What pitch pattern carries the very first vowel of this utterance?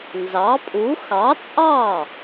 rising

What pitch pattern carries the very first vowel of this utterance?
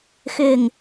low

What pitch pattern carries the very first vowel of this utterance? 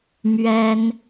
high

